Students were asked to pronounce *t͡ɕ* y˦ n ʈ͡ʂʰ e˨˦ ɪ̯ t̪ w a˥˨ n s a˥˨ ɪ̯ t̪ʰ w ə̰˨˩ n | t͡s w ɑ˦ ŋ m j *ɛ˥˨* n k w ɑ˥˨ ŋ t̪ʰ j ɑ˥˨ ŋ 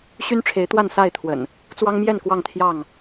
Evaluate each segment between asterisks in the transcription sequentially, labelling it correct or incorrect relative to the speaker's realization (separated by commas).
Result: incorrect, correct